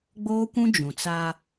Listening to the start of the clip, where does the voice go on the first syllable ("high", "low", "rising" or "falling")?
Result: high